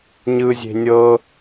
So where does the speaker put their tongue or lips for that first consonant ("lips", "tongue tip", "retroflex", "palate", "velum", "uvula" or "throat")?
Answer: palate